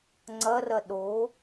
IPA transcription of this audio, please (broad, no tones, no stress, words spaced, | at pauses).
ŋ͡ǀɐrɐ ɗo